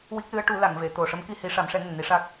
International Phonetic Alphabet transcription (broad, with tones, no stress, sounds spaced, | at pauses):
w i˦˥ k̚ l ɨ˧˥ ə̯ ʈ u˨˩˦ l a˨˩˨ ŋ v e˨˩˨ t̪ o˨˩ ʂ ə˧˥ m k i˧ h i˨˩˦ ʂ a˨˩˦ m ʂ ɛ˨˩˦ ŋ ə˨˩ ŋ n i˧ ʂ a˦˥ k̚